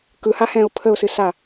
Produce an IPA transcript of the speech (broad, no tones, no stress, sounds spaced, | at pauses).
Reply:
k ɯ h a h ɛ̃ ʊ̯ pʰ ə ʊ̯ s ɨ s a